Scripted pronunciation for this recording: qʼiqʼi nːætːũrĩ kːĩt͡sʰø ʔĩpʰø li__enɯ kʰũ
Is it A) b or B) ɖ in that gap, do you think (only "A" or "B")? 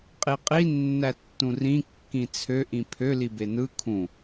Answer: A